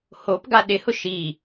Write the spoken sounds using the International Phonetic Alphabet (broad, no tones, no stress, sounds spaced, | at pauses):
h o p ɡ a ɗ ɪ h ʊ ʃ i